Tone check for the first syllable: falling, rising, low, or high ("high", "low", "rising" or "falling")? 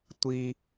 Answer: high